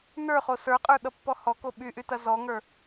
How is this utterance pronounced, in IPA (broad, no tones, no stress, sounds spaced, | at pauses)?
n ə˞ χ o s ə˞ qʼ ə˞ ɗ ʌ pː ɔ h ɔ k o ɓ y ʔ y t ɐ z ɔ ŋ ə˞